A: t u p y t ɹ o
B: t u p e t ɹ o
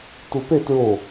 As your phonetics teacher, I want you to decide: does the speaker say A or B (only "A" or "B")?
B